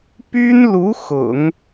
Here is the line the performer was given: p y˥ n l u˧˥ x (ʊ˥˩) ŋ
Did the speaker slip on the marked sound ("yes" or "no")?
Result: yes